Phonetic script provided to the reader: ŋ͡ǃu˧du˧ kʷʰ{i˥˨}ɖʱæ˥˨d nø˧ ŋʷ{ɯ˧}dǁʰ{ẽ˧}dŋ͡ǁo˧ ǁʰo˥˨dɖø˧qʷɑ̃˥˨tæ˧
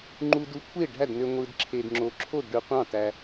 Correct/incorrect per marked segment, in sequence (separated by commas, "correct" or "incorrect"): incorrect, correct, incorrect